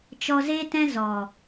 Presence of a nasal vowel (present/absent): present